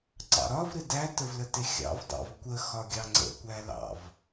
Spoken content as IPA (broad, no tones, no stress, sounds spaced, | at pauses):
ǀ ɑ̰ ɾ ɒ v ɾ ɪ d æ t ə v l ə t ɪ xʲ ɑ̰ v dˤ ɑ̰ v kʷ ə x ɒ ɡʲ ɑ ŋ͡ǀ ə̰ kʷ æ l ɑ̰ v